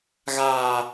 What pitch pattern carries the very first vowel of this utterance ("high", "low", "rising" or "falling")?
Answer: low